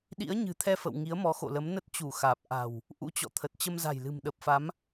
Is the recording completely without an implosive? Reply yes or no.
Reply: no